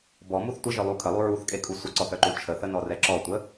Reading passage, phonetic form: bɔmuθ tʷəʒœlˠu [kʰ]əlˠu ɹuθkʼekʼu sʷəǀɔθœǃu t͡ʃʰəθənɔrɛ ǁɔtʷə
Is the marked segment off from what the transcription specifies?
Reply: no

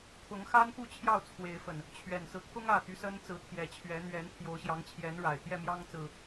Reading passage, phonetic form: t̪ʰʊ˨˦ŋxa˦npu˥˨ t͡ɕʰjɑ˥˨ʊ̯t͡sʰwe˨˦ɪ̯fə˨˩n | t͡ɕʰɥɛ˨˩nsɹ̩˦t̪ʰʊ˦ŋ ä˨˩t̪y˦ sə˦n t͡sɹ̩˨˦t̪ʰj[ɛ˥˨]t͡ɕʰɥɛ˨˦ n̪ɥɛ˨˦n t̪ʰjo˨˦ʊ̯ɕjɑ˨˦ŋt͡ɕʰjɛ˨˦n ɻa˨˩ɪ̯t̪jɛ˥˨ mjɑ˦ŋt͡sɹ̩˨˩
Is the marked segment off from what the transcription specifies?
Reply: yes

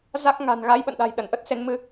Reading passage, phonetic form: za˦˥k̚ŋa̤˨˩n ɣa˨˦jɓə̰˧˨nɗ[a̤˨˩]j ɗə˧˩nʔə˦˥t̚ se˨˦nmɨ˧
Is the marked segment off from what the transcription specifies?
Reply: no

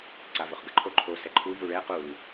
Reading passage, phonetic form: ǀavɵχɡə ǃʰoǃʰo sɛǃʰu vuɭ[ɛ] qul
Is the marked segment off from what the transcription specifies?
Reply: no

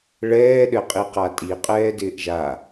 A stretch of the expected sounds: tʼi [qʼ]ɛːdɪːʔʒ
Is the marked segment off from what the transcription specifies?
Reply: no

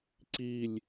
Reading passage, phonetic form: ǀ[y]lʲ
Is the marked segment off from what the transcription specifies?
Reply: yes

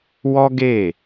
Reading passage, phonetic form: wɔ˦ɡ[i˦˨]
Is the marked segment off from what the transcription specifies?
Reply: yes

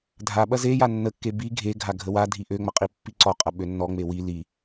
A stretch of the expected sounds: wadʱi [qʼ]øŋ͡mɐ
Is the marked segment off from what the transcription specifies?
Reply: yes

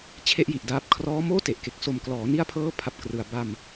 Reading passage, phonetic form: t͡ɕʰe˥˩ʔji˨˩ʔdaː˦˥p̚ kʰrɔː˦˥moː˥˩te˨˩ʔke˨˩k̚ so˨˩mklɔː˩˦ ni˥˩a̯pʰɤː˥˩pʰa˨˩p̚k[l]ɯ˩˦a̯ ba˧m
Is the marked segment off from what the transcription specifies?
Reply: yes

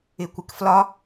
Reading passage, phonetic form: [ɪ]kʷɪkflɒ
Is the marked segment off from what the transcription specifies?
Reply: no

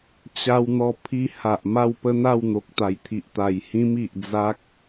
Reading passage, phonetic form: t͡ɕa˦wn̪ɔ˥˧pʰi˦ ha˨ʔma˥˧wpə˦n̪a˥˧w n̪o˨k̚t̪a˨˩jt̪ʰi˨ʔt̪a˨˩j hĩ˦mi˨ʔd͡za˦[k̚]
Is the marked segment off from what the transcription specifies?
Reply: no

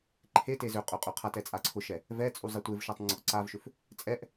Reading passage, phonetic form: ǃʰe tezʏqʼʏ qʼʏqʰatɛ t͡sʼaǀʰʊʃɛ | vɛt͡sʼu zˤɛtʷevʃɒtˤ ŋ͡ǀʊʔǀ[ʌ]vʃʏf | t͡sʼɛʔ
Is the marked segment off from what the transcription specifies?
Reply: yes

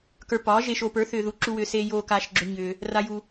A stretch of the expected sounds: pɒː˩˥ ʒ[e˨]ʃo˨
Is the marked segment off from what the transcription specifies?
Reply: no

